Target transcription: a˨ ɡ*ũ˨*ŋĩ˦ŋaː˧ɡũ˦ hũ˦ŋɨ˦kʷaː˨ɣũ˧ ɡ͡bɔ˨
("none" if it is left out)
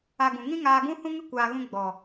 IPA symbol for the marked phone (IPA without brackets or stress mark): ũ˨